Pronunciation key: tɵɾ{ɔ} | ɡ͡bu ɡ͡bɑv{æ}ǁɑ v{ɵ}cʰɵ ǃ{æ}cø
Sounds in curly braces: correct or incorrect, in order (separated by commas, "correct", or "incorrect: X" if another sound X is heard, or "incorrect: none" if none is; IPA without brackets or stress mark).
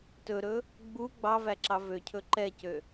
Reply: incorrect: ɵ, correct, incorrect: ø, incorrect: ɛ